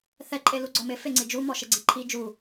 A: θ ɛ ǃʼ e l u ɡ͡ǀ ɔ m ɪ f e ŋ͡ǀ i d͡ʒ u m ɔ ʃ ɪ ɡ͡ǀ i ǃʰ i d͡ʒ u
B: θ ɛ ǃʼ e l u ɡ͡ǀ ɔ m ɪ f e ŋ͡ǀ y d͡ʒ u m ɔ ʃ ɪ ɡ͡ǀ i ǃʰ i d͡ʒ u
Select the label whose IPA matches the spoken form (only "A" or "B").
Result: A